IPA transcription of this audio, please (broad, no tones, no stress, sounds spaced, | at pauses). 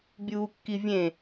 bʲ uː kː i vʲ ẽ